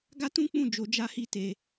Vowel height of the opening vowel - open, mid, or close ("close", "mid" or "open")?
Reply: open